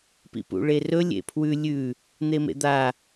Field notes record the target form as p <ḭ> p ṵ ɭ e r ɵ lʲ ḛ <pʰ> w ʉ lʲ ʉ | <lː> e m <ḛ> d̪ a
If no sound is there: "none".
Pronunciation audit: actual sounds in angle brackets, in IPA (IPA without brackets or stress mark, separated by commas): ḭ, pʰ, n̪, ḛ